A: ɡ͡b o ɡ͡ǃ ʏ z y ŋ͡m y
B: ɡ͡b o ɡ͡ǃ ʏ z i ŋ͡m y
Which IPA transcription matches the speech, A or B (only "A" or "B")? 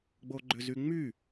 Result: A